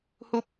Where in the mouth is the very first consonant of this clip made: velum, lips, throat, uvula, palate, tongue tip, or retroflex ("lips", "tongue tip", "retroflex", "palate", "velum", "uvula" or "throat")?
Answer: throat